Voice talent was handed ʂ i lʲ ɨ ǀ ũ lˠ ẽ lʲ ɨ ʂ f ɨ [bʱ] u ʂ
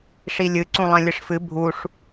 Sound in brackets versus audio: correct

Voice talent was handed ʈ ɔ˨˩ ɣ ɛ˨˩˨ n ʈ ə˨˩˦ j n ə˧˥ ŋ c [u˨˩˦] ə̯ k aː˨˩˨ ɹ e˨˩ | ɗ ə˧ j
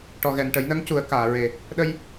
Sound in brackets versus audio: correct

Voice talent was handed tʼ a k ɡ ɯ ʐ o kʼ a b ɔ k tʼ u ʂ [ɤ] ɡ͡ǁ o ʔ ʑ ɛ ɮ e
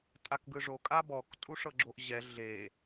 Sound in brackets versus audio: correct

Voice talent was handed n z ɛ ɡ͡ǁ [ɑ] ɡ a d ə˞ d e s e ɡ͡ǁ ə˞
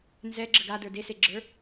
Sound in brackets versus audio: incorrect: ə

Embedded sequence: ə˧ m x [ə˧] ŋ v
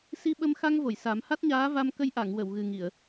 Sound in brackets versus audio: incorrect: a˧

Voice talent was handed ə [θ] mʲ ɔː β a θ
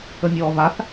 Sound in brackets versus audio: incorrect: none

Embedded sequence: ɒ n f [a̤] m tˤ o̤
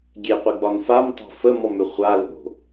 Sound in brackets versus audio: incorrect: a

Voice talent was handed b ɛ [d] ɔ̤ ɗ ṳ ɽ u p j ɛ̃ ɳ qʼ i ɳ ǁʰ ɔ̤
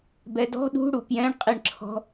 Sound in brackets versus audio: correct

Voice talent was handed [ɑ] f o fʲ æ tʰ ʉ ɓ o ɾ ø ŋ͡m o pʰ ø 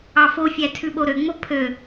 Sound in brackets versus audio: correct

